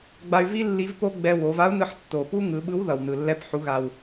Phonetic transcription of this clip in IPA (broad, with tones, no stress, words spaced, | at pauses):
ɡ͡ba˧y̯vi˥ lːi˧˥vpo˥ ɡ͡bɛ˧ wo˩˧va˧˥u̯nɯ˧ħ tːo˩pu˥ ŋɯ˩˧ɓɯ˧˥w ðʌ˩wnɯ˩lːɛ˧˥p ħu˩˧ɣa˩w